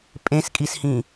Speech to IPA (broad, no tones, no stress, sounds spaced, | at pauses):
pʼ ẽ s kʼ i s h ĩ